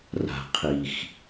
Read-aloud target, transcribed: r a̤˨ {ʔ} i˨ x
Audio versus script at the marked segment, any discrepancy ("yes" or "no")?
yes